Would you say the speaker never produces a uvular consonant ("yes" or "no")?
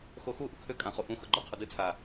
no